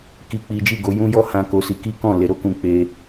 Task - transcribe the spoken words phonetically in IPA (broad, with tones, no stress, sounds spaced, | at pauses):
k i˦ k͡p i˦ d͡ʒ i˦˨ ɡ o˨˦ j ũ˦ j ɔ˦ h ã˦ k o˦ s i˦ k i˦ k ɔ̃˦˨ l e˧ ɾ o˦ k ũ˧ k͡p e˦